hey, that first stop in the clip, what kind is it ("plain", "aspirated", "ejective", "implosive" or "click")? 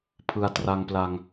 aspirated